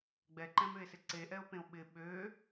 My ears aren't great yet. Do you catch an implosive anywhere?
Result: yes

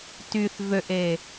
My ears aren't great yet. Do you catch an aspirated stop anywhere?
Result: no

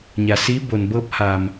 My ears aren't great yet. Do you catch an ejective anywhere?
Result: no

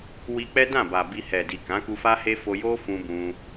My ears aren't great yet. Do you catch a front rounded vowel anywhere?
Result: no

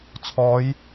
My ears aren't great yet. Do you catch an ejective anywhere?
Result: no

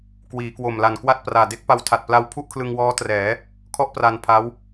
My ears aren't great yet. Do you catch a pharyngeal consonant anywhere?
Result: no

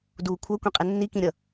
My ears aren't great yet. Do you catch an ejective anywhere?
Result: yes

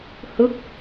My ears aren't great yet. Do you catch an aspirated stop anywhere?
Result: no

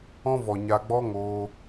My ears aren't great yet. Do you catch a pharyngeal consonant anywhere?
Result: no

